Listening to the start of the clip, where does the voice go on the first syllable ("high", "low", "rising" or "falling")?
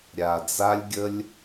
low